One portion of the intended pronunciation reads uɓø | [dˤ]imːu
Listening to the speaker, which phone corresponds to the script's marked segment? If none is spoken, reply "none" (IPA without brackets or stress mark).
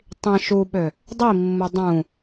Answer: dˤ